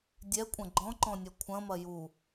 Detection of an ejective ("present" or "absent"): present